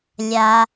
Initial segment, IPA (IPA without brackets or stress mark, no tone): lʲ